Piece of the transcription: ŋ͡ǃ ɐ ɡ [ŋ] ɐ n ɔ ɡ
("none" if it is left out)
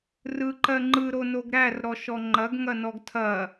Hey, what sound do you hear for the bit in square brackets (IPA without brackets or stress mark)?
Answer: ŋ